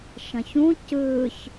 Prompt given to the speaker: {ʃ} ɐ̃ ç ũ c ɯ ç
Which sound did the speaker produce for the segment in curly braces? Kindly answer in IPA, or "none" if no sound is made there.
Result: ʃ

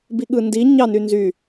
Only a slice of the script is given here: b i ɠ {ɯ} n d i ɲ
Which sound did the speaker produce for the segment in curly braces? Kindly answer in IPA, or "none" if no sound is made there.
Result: ɯ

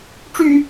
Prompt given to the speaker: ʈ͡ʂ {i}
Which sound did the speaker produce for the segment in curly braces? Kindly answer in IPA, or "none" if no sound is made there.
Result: y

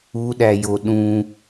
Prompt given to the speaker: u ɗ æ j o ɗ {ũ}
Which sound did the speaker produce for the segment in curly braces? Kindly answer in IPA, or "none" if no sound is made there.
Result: ũ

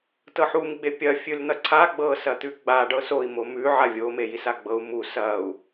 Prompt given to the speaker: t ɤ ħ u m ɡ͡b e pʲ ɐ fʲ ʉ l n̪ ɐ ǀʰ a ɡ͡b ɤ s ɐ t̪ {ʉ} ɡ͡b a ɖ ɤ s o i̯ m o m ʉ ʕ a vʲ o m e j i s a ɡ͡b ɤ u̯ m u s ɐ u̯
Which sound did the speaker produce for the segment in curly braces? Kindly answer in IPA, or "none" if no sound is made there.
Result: ʉ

